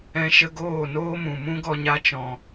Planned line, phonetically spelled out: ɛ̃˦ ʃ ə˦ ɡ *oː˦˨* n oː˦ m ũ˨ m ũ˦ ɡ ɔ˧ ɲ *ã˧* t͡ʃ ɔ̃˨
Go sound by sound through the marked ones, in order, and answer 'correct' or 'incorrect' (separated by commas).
correct, incorrect